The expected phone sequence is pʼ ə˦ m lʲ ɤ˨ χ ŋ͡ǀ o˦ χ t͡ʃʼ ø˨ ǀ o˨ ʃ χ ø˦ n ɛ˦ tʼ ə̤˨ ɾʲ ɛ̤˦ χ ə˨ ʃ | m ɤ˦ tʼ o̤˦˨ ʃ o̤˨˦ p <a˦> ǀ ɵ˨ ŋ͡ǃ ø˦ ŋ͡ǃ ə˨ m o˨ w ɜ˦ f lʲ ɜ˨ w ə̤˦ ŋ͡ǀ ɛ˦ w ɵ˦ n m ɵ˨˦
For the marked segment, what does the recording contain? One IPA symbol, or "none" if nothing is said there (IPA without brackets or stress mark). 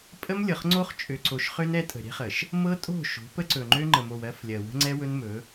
ə˦